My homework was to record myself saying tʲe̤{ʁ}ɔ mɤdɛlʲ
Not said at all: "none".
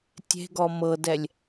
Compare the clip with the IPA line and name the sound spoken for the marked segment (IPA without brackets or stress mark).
ɡ